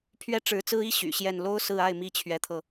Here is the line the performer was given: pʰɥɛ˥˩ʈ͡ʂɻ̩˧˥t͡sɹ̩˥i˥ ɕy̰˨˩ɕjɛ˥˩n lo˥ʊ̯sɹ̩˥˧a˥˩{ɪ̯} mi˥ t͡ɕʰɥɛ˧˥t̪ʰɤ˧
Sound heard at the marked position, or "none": ɪ̯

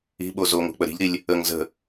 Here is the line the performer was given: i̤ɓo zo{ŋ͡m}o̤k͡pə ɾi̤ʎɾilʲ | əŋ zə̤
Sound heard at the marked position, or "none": ŋ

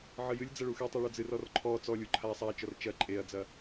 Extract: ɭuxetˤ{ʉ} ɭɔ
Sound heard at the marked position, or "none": u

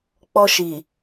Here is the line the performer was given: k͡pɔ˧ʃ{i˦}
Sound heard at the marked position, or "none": i˨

